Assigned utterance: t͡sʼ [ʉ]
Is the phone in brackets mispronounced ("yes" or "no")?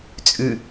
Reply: no